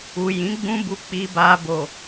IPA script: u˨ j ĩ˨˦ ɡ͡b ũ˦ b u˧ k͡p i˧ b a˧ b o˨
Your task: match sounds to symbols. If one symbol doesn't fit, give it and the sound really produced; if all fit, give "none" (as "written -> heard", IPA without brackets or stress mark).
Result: none